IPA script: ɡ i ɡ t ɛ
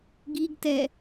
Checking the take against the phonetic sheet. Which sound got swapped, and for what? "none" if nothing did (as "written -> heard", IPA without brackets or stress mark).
none